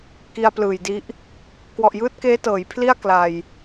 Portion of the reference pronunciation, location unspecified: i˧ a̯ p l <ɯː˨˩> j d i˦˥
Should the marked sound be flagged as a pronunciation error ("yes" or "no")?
no